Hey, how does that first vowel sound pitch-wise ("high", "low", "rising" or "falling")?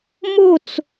falling